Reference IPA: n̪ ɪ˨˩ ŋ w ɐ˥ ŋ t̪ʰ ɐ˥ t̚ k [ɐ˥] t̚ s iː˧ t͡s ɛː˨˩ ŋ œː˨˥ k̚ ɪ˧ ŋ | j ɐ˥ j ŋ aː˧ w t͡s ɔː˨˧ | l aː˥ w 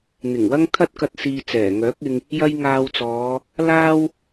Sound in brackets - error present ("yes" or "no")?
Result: yes